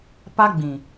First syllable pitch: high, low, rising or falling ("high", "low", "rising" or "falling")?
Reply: high